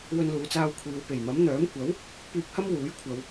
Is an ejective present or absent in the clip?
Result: absent